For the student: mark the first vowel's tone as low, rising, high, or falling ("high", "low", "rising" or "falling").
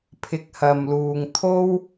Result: low